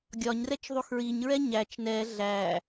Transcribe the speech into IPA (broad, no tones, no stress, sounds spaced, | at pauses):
ɡʲ ɒ ɲ r ɛ t͡ʃ ðˤ u x ɹ i ɲ ɹ ɛ ɲ æ t͡ʃ n ɛ ɮ æ